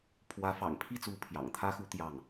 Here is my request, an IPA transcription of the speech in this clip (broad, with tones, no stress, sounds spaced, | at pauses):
pʰ w ä˧˥ f ɑ̰˨˩ ŋ pʰ i˥˩ t͡s u˧˥ pʰ j ɑ̰˨˩ ŋ t̪ʰ ä˥ x u˧˥ t̪ j ɑ˥˩ ŋ